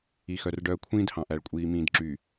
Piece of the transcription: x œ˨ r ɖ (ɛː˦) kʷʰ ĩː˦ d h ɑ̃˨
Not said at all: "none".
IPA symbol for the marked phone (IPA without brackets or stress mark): œː˦